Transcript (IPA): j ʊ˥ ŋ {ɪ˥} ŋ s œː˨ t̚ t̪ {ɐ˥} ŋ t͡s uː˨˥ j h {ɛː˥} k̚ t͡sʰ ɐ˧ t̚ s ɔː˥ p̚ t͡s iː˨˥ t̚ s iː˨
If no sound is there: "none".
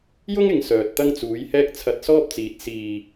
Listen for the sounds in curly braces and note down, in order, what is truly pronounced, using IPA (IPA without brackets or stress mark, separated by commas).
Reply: ɪ˨, ɐ˥, ɛː˥